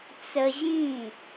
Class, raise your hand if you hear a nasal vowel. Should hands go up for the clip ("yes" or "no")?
yes